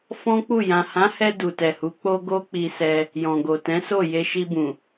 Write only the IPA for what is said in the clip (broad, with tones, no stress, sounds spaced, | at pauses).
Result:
f ɔ̃˦ k͡p u˦˨ j ã˨ h ã˨˦ h ɛ˧ d u˨ t ɛ˨ h u˨˦ k͡p o˦ ɡ o˦ k͡p i˧ s ɛ˧ | j ɔ̃˨ ɡ o˨ t ɛ̃˨˦ s o˦˨ j e˧ ʃ i˧ b ũ˨